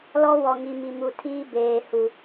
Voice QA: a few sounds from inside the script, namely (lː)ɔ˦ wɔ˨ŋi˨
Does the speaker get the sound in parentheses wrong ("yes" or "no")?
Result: yes